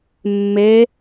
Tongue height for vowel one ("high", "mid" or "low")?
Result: mid